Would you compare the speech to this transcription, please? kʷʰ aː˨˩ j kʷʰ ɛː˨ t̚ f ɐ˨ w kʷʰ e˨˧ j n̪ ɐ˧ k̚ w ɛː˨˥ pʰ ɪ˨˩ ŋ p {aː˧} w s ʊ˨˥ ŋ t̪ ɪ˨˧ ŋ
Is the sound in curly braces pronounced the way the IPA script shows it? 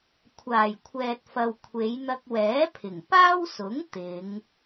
no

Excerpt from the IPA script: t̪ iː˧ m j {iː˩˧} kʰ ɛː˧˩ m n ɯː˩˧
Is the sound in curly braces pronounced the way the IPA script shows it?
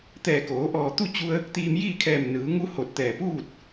no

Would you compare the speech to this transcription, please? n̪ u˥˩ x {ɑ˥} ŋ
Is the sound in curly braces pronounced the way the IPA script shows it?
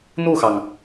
no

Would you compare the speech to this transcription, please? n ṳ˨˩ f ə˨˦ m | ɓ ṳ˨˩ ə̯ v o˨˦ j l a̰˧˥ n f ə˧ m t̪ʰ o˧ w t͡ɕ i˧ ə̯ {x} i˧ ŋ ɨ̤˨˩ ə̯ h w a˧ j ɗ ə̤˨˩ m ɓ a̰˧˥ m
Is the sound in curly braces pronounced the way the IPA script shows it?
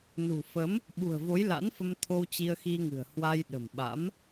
yes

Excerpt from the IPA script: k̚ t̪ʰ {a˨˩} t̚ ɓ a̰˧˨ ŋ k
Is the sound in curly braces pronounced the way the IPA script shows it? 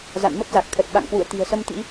no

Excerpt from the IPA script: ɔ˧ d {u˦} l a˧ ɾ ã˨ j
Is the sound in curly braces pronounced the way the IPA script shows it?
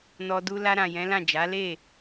yes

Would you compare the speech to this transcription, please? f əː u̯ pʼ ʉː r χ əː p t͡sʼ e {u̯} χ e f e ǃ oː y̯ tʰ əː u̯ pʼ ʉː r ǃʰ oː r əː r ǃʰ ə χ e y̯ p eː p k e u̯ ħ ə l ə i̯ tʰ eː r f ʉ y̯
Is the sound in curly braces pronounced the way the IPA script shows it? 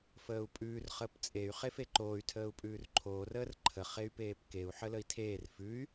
no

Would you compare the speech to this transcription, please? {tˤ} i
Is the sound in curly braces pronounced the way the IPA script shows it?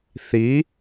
no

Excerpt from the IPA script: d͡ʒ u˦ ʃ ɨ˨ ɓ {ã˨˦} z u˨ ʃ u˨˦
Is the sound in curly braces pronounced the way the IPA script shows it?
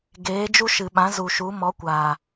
yes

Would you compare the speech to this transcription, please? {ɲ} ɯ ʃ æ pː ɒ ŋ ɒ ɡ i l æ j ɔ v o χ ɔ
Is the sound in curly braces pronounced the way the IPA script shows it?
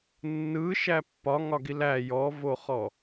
no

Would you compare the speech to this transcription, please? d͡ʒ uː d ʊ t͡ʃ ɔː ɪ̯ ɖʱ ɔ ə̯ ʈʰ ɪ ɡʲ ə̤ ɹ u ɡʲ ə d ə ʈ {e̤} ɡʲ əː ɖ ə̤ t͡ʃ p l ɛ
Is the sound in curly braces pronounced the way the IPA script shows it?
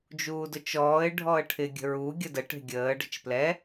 yes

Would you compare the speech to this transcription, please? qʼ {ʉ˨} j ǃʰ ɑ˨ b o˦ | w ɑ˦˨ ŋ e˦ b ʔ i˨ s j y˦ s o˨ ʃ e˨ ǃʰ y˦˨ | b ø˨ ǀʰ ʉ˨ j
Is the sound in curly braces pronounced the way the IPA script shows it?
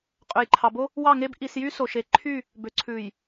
no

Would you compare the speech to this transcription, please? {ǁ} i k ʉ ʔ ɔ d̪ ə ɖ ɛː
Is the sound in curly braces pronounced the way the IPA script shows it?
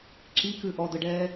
yes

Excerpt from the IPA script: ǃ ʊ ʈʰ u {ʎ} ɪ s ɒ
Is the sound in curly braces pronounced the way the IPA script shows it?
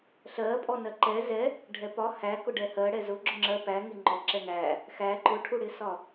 no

